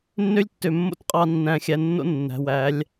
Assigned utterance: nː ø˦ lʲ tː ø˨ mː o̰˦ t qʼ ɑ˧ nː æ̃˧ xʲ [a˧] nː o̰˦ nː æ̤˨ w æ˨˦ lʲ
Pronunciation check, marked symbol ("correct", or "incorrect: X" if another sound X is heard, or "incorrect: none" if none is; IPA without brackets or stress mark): incorrect: æ˧